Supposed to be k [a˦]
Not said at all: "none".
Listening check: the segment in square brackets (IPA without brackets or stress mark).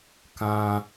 ã˦